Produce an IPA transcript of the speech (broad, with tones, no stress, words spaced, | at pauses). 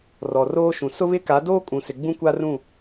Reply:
rɔ˨roː˦ʃũ˨ sʊ˦βɪ˦ka˨˦ doː˦kʼũ˨sɪ˨ ɡ͡bũ˦kʷa˦rũ˦˨